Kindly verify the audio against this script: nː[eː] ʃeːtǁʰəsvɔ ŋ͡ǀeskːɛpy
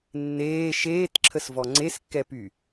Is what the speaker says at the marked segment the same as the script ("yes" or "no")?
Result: yes